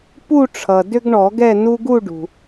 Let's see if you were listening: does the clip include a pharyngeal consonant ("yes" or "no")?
no